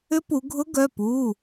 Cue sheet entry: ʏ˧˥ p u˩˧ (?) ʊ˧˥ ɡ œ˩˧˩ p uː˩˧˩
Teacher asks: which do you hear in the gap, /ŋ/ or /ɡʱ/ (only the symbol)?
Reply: ɡʱ